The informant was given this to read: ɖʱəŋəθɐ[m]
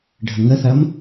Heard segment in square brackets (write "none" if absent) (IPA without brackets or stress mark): m